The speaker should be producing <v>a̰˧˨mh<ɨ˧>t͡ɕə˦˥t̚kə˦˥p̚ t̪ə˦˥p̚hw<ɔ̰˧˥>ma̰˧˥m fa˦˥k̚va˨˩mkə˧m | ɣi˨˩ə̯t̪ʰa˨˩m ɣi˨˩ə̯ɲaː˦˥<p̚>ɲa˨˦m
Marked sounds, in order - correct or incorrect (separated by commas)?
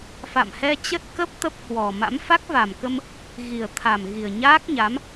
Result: incorrect, incorrect, incorrect, incorrect